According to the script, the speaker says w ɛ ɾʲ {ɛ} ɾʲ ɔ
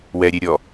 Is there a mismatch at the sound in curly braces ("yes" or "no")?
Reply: yes